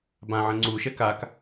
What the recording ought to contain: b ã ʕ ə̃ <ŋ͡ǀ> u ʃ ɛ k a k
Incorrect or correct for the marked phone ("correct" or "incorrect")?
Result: correct